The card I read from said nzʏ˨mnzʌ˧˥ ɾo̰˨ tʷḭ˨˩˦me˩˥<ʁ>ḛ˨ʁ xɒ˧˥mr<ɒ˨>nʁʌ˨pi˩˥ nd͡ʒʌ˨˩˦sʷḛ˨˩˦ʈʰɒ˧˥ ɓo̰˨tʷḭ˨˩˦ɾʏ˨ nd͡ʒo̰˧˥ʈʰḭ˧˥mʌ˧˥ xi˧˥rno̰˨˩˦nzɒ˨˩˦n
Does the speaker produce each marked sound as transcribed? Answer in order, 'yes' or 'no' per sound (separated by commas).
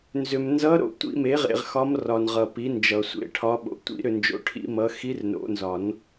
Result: yes, yes